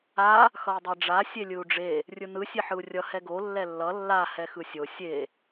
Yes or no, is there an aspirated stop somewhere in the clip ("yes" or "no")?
no